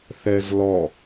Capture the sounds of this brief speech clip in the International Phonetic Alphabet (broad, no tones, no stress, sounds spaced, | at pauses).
θ ɛ z l ɔ